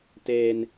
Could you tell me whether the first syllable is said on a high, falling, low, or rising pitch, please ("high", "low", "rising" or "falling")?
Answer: high